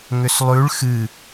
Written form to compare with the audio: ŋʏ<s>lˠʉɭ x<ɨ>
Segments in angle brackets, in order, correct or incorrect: correct, correct

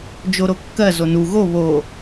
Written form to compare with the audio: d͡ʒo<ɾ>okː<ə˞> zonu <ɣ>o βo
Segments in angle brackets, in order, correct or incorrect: correct, incorrect: ɜ, correct

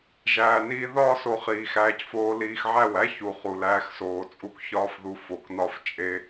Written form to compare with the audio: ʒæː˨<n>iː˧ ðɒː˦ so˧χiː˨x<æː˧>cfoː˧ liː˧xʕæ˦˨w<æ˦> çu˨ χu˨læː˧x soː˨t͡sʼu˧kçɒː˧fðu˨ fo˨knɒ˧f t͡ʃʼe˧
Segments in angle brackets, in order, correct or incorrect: correct, correct, correct

